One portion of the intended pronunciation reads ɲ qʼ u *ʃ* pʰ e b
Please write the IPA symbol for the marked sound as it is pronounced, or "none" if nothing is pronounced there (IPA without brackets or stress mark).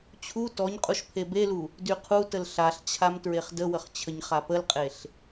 ʃ